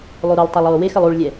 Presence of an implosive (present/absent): absent